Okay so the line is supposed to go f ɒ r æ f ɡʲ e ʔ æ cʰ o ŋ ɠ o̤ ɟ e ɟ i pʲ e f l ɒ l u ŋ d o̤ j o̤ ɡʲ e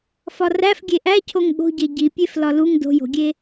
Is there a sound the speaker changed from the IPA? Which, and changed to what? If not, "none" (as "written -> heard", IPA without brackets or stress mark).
none